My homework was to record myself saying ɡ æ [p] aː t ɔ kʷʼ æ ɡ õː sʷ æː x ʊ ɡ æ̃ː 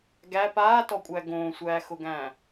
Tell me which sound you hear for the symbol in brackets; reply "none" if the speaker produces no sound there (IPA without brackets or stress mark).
p